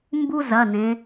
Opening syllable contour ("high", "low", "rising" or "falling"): high